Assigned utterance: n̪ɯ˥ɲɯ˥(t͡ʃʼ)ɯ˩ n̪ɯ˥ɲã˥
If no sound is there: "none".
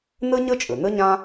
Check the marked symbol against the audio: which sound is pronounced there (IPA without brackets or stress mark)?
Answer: t͡ʃʼ